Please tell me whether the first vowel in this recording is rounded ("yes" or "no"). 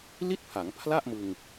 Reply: no